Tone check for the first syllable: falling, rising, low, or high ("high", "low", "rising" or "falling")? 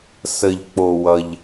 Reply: low